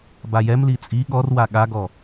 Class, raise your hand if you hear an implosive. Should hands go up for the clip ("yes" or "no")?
yes